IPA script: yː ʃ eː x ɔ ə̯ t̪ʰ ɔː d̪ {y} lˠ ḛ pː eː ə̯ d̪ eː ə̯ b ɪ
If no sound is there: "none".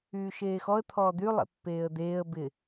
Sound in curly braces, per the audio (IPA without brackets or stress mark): y